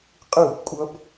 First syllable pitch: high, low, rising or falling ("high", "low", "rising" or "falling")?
falling